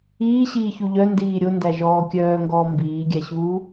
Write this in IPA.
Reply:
iː ɕ iː ç u ʎ œ n d iː ɾʲ o n d æ ʒ ɔː kʲ œː ŋ ɡ ɔː m b iː ɡʲ æ ɕ uː

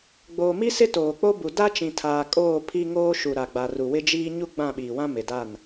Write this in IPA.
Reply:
ɡ͡b oː˨ m i˦ s ɪ˦ t oː˨ k͡p o˦ b u˨ d a˦ t͡ʃ ĩ˨ tʰ aː˨ kʼ oː˦˨ pʰ i˦ ŋ oː˦ ʃ u˨ ɾ a˨ ɡ͡b a˨ r u˨ w ɪ˦ d͡ʒ iː˦ ɲ u˦ ɡ͡b ã˦˨ ɓ iː˨ w ã˦ m ɪ˨ d a˦˨ n

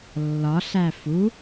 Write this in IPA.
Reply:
lː ɒ ɬ æ f u

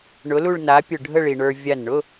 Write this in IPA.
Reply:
ɳ ʊ˨˥ l u˥˧ ɭ n a˨˥ pʲ ʊ˧˩ ɖʱ ə˥˧ ɭ i˩ ɳ ə˞˧ vʲ a˧˩ n ɳ ʊ˧˥˧

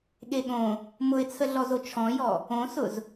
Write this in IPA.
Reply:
ɠ e ɠ õ | m ʊ ɪ̯ t͡sʰ ə ɮ ɔ z o t͡ʃʰ ɔ̃ j ɔ | õ s ʊ z

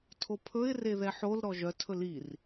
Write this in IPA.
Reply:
tʰ o pʰ ɵ ɪ̯ r e ð ɛ ħ o l ɾ ɔ ʒ œ tʰ ɵ l i r

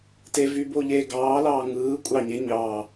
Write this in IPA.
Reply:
t e v yː b oː ʎ eː ɡ ɑː l ɑː ŋ ɯː kʷʼ ɑ ɲ e ɲ ɑː

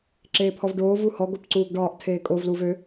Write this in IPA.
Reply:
ǁ eː pʰ ɔ v ɖ oː v u h ɔ ɡ o p ǀ uː ɡ ɖ ɒː ʔ tʰ eː kʼ o v l uː v ø

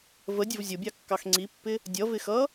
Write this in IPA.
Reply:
v ə dʲ ə v zʲ ʊ bʲ ɑ kː ɑ x ŋ͡ǀ i pː ɪ | dʲ ʌ v ɪ x ʌ

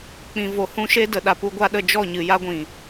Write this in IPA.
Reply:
k͡p ĩ˨ v o˨ h ũ˦ ʃ e˦ d ə˨ ɗ a˨ p u˧ ɡʷ a˧ ɗ ə˦˨ d͡ʒ ɔ˦˨ ɲ ɨ˨ j a˦ ɡʷ ĩ˨

